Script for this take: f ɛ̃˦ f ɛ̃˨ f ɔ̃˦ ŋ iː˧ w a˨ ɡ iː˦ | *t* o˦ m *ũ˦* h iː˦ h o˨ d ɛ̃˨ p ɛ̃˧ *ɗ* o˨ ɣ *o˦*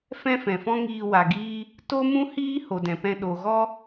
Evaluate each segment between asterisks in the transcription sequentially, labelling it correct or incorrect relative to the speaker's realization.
correct, correct, correct, incorrect: ɔ˦

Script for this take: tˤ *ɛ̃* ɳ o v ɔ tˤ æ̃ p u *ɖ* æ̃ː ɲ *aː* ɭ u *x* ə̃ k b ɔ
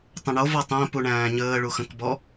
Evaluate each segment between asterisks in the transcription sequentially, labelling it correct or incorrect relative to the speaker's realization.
incorrect: ə̃, incorrect: ɳ, incorrect: əː, correct

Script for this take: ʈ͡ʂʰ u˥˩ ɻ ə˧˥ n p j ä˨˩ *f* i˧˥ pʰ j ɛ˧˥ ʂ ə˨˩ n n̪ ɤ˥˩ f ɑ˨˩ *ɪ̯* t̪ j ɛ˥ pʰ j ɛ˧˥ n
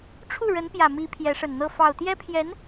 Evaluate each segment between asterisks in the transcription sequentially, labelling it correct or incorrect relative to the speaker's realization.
incorrect: m, incorrect: ʊ̯

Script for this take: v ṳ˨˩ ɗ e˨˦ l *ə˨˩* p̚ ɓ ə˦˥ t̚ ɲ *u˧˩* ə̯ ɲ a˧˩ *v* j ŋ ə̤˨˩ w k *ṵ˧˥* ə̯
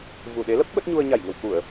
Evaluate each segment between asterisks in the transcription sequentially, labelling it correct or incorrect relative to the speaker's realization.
incorrect: ə˦˥, incorrect: u˧, incorrect: none, incorrect: u˧˩˨

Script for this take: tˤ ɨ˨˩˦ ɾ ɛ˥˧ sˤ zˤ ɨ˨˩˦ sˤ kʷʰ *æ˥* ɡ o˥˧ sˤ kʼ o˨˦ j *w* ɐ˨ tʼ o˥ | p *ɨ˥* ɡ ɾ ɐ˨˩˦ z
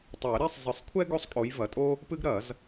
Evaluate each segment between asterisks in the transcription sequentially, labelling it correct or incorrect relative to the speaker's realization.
incorrect: ɛ˥, incorrect: v, correct

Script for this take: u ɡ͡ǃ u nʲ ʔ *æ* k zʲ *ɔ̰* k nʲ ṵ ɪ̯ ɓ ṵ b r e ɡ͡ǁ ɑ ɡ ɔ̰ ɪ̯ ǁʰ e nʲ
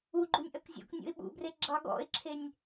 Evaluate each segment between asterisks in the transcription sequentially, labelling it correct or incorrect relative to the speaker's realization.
incorrect: ɐ, correct

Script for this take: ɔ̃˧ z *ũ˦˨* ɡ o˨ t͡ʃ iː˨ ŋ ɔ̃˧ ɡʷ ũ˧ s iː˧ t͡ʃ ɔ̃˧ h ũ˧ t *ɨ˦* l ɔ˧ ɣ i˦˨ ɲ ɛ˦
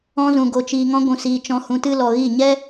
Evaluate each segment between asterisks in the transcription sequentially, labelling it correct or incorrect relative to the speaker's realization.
incorrect: ũ˨, correct

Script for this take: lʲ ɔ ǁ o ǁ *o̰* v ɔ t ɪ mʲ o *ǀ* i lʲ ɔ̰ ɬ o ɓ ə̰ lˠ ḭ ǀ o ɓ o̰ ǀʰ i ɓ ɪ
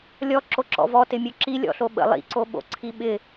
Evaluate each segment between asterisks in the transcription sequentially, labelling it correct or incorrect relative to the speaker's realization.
incorrect: ɔ̰, incorrect: ǁ

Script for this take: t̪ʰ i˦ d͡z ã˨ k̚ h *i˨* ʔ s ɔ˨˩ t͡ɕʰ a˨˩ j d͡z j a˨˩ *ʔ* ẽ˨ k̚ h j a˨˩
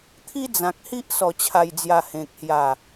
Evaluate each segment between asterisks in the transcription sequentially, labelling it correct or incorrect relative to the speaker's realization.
incorrect: i˦, incorrect: h

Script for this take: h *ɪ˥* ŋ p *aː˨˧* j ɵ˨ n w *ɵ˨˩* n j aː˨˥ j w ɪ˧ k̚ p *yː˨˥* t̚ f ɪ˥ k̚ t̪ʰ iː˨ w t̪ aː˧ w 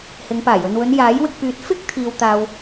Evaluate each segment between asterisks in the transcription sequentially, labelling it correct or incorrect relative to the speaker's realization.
incorrect: ɪ˨˧, incorrect: aː˨˩, incorrect: ɵ˨˧, correct

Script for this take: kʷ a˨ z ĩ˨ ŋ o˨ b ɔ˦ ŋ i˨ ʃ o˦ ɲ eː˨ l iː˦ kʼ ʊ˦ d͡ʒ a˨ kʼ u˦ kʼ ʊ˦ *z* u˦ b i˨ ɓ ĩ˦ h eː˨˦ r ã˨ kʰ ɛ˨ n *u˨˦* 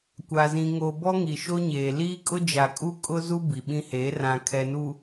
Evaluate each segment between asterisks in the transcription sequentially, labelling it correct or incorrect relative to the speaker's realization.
correct, incorrect: u˨

